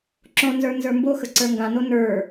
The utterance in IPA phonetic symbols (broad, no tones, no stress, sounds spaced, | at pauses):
ǁ õ n z ə˞ n z ə˞ m b o x ə ǀ ə˞ ŋ ɡ ã n o n ə˞